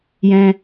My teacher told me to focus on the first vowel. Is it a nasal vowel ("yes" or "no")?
yes